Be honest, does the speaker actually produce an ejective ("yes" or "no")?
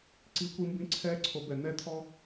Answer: no